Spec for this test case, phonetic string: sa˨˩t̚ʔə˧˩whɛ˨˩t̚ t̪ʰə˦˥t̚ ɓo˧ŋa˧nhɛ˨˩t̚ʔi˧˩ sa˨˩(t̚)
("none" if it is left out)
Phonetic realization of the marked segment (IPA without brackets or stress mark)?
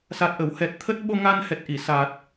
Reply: t̚